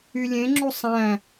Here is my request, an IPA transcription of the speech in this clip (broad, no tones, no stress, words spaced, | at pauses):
ylʲẽŋ͡ǁu sˤæ̃